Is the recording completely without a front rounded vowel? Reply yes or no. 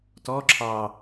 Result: yes